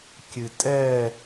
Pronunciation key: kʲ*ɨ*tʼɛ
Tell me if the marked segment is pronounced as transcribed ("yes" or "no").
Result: yes